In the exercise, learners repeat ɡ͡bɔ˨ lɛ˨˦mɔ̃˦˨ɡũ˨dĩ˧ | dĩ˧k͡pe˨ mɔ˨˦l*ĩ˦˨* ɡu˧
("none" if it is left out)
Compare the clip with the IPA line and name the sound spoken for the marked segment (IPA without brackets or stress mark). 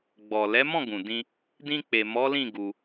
ĩ˦˨